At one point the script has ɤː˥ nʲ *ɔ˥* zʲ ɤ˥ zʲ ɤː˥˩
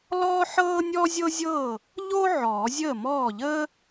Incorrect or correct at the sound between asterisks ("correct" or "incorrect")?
correct